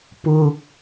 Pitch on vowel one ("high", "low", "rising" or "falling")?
low